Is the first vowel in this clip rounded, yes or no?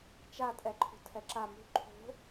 no